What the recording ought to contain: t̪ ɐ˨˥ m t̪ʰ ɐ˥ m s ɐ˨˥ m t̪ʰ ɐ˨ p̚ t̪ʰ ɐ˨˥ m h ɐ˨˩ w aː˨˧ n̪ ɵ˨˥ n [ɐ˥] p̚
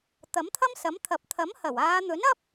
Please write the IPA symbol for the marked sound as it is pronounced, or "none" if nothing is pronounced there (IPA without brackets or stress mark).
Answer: ɐ˥